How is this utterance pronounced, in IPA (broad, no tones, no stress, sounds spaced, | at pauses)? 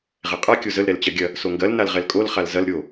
ʁ ɛ qʼ a kʲ o z ə l ɾ ɛ l t͡ɕ ɐ ɡʲ ɐ | s o ŋ ɡ ɐ l n a l ʁ ɛ l kʼ o l χ a l z ɐ l ɾʲ o